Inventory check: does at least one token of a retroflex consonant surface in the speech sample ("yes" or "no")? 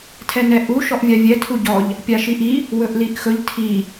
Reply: no